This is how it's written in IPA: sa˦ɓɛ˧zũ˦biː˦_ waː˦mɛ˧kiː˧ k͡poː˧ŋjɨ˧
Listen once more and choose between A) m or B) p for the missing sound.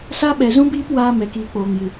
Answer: B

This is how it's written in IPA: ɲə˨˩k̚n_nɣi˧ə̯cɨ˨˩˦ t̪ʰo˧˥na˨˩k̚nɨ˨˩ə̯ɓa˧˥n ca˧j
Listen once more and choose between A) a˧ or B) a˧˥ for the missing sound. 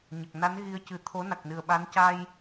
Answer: B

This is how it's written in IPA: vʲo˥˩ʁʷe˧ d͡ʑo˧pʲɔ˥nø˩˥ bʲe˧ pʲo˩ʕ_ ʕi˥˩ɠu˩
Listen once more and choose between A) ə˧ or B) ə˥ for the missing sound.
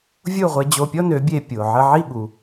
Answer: A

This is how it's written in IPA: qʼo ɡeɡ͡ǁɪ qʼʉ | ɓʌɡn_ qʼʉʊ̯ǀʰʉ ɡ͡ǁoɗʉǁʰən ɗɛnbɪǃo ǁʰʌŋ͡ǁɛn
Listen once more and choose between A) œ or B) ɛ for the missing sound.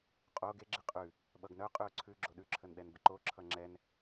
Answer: A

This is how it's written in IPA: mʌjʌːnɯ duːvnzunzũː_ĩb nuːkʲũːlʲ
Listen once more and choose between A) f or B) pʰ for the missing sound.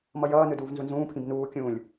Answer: B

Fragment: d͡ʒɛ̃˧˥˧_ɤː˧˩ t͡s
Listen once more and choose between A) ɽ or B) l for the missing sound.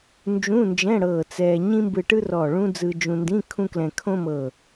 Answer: A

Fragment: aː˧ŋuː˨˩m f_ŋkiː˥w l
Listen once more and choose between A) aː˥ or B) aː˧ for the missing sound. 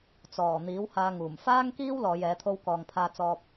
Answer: A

